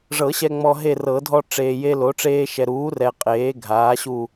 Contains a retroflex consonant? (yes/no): yes